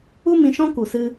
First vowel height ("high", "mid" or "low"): high